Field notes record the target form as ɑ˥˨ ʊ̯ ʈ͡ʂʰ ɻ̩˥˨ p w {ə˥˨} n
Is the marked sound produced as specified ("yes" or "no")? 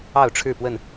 yes